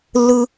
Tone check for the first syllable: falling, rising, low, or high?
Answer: high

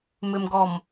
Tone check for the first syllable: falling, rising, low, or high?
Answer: low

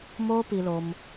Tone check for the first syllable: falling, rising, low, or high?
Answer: high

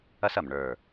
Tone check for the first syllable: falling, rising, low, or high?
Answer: high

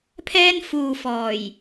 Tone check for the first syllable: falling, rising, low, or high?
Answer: high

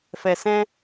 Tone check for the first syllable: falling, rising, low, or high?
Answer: low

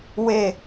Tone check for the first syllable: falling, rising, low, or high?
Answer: falling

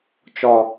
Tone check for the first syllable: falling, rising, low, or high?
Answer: low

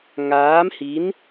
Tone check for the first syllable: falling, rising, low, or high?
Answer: rising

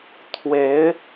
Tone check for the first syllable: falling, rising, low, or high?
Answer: rising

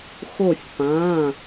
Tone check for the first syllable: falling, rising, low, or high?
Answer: falling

